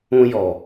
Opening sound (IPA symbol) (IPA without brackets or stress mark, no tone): ũ